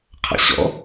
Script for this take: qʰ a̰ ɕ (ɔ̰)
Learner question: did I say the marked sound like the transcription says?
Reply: yes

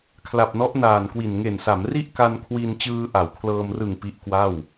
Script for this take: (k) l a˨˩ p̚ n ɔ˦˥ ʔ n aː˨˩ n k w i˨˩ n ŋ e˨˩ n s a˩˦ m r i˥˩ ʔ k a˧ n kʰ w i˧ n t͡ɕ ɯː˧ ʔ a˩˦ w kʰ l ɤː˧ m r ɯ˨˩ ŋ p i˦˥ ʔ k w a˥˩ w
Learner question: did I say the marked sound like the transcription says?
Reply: no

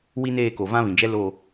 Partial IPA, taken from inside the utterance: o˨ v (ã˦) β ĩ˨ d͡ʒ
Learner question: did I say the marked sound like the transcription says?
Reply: yes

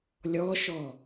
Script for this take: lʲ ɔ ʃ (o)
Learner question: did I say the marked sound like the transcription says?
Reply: no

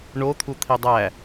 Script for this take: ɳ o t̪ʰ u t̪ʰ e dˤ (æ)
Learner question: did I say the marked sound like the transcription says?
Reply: yes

